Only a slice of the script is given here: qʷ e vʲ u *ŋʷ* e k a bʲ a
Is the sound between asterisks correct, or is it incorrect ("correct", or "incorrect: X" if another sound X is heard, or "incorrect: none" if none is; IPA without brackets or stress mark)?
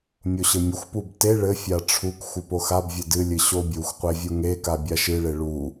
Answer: incorrect: ŋ